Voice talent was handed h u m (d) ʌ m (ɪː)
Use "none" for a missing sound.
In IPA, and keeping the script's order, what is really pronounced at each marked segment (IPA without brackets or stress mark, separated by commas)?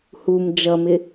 d͡ʒ, ɪ